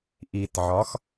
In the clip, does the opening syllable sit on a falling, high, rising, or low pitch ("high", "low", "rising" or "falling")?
low